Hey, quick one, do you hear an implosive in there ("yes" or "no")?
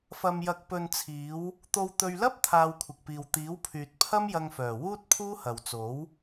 no